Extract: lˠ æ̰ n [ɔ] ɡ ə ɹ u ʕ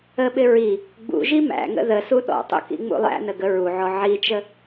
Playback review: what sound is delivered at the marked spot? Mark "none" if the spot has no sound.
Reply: ə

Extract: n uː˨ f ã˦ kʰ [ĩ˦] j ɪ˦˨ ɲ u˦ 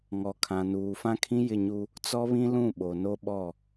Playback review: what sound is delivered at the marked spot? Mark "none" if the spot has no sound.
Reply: ĩ˦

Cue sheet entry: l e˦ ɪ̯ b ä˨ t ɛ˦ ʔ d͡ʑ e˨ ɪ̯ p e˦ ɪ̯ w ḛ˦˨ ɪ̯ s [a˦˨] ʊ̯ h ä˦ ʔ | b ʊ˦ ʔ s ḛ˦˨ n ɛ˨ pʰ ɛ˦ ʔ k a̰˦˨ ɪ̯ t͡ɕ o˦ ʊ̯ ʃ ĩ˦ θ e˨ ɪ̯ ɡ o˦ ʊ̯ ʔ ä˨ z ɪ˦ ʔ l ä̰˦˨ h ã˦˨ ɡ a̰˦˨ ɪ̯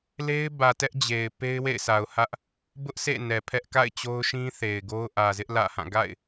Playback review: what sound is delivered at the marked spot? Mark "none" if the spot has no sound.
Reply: a˨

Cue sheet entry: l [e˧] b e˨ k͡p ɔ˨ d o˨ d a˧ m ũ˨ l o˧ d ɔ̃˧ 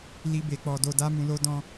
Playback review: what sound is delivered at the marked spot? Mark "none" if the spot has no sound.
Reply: i˧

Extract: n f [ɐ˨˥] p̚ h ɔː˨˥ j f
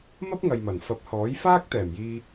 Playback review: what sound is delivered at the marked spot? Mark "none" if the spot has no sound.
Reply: ɐ˨˥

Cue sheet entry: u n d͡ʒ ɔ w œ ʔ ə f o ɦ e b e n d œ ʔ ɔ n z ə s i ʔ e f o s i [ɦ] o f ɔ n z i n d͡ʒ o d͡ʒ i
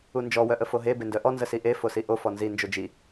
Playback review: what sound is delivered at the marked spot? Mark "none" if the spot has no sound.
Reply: ʔ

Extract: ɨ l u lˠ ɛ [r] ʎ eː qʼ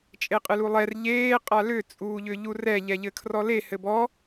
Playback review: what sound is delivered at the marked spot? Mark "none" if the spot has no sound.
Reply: r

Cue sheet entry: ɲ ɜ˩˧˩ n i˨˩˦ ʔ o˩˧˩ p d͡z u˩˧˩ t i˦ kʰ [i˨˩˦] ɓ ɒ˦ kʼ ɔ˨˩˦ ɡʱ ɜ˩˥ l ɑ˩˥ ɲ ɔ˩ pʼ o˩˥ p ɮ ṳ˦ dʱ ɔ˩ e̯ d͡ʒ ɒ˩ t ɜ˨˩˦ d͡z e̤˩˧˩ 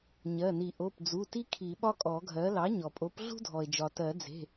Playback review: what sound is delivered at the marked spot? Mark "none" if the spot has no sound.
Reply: i˨˩˦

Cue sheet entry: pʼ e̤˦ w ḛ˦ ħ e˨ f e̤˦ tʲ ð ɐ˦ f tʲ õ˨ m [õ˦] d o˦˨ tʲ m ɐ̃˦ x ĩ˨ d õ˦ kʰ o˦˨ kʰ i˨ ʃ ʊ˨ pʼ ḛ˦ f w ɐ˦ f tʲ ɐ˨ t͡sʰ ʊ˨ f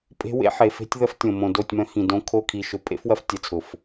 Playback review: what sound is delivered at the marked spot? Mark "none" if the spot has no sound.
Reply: õ˨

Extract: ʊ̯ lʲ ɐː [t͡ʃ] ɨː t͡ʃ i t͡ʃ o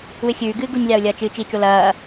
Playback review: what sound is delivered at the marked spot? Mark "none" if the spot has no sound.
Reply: t͡ʃ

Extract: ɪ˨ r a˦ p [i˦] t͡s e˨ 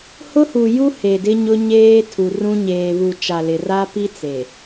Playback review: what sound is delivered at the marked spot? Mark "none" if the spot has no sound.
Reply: i˦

